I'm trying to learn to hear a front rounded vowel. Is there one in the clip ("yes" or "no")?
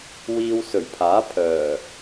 yes